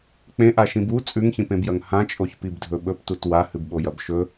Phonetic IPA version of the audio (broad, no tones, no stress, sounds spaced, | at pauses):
k͡p ẽ ʔ a ʃ ĩ b u t͡sʼ ʉ ŋ ç ĩ p ẽ b j ɐ ŋ h ã t͡ʃʼ o ç p i b dʱ ɵ ɓ ɵ p t u t w a h ɨ b ɓ o j ɐ b ʃ ɵ